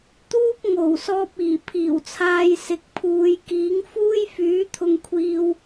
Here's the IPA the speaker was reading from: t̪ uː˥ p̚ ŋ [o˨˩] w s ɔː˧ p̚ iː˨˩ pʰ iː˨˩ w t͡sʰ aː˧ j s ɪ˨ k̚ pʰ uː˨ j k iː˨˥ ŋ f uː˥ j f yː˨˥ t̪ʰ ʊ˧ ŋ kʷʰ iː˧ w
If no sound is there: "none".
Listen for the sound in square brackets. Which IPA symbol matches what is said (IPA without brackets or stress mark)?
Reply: o˨˩